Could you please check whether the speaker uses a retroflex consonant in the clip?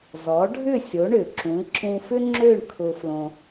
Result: yes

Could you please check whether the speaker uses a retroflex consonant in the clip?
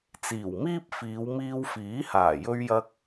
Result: no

